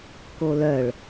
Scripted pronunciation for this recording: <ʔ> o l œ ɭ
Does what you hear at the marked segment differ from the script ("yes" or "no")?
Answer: yes